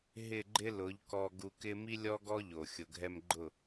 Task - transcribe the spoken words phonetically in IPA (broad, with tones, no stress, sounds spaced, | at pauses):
ɦ ɪ˦˨ ɡ͡ǃ ɪ˦ l ʊ˨˦ ʎ k ɔ˧ ɡ u˧ k ɪ˦ m i˦ lʲ ɔ˦ ɡ ɔ˦ ʎ o˨ xʲ ʊ˨ ɡʱ ɛ˧ m ɡ͡ǃ ʊ˦˨